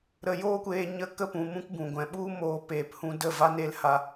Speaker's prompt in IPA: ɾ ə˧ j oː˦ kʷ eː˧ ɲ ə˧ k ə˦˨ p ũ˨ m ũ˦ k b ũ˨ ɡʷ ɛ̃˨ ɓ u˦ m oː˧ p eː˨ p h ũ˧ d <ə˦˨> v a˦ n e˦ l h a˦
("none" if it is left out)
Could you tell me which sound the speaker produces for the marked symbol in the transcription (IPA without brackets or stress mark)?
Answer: ə˦˨